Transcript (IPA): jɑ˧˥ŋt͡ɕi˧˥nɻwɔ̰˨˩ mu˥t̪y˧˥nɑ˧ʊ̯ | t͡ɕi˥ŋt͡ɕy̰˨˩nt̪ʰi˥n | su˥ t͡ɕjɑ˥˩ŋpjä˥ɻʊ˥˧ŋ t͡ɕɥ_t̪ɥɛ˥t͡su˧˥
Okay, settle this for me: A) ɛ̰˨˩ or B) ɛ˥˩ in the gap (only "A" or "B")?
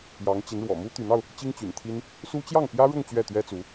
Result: B